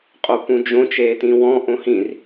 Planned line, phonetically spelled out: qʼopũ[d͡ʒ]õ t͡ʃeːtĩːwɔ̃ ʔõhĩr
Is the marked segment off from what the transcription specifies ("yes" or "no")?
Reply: no